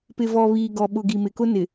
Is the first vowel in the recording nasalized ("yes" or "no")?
no